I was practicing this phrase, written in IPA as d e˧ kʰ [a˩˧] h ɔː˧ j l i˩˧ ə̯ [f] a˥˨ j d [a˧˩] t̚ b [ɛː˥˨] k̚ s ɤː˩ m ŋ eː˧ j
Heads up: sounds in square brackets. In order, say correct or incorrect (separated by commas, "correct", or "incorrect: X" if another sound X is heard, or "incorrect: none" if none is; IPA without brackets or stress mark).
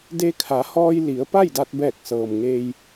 correct, incorrect: p, incorrect: a˧, incorrect: ɛː˧˩